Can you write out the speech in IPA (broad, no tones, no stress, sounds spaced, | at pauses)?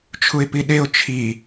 t͡ʃʰ u ɪ̯ p i ɗ e ʊ̯ t͡ʃʰ i